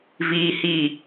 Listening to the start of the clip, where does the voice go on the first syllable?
low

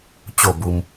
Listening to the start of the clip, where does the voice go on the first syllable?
falling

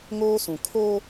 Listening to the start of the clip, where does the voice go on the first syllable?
high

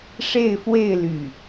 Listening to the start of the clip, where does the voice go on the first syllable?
falling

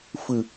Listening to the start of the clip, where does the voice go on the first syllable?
low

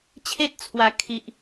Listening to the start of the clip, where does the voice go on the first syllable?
high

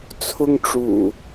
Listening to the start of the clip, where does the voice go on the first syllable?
high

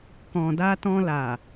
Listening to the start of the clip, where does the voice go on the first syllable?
low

